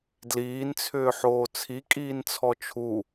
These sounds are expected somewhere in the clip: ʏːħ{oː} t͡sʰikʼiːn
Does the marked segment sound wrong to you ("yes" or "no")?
no